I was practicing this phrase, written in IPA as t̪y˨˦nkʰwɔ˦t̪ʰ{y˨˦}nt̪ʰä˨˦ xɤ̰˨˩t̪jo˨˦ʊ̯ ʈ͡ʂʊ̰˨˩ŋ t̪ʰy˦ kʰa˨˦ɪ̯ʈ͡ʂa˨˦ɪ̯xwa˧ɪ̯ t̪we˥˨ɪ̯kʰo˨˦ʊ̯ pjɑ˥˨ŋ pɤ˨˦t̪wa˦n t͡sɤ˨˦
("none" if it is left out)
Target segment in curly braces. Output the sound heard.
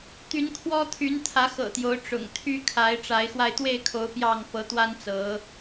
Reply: y˨˦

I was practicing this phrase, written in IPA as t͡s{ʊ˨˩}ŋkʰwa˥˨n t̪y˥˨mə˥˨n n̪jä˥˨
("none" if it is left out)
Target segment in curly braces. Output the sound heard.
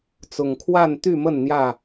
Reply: ʊ˨˩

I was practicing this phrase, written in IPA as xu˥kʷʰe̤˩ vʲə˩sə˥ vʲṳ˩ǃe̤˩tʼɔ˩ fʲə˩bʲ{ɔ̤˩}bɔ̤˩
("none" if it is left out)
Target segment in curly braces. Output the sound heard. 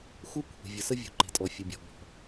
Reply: ɔ̤˩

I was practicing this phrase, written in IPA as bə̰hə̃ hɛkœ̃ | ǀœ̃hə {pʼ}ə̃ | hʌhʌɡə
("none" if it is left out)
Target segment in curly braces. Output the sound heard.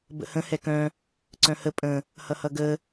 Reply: pʼ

